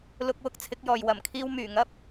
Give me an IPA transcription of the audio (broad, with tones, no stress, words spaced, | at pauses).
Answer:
lʊ˧k̚wʊ˧k̚ t͡sʰɪ˨˥k̚jɔː˨j wɐ˨˩mkʰiː˧w myː˨˩ŋɐ˥p̚